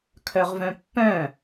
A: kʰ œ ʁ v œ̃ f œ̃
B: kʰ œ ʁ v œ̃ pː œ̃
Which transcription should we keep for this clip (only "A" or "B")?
B